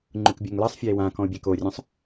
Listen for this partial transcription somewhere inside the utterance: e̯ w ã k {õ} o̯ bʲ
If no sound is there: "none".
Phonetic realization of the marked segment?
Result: ɔ̃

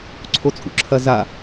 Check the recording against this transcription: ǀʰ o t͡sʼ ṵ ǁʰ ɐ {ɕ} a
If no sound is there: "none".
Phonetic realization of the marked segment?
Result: z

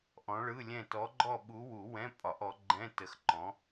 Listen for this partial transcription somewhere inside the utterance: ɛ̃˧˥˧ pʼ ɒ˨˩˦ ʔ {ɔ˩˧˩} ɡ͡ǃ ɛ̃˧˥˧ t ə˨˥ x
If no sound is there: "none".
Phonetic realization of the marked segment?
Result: ɔ˨˥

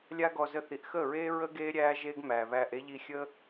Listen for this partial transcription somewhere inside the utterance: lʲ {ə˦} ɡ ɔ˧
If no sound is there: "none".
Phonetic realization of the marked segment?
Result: a˦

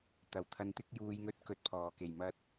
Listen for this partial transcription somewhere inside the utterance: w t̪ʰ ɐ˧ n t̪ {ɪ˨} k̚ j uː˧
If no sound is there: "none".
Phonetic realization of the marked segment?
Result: ɪ˥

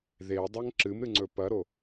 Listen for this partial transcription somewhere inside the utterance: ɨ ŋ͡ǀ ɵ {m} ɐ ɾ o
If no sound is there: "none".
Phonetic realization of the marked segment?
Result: p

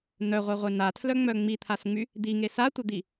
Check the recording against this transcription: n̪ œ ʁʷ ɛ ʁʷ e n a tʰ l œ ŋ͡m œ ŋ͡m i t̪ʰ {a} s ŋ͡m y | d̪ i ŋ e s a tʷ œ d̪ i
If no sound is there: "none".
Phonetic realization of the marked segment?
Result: a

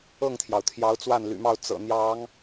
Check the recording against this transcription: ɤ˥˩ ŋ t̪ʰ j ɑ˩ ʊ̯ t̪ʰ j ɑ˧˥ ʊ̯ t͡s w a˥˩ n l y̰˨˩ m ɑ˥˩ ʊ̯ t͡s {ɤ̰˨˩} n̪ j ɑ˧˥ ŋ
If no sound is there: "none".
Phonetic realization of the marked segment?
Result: ɤ̰˨˩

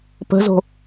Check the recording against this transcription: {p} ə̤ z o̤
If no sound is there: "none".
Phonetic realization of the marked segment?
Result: p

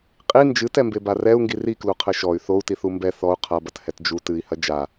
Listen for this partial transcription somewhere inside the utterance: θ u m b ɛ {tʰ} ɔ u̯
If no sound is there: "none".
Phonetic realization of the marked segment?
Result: θ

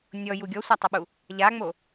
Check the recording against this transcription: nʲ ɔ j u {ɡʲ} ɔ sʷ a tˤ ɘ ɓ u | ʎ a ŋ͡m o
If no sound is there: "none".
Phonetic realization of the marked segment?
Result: ɡʲ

